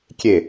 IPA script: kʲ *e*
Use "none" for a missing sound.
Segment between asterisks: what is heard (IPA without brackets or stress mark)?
e